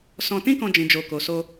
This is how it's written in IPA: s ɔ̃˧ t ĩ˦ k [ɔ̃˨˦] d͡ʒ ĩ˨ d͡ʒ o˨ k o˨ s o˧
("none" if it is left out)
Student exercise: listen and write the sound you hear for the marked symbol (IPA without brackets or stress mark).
ɔ̃˧